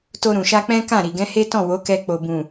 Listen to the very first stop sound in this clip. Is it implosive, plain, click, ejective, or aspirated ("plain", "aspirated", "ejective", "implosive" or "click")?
plain